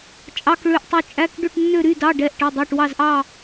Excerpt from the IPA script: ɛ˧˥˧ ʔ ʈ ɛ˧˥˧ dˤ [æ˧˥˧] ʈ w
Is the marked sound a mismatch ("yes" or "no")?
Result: no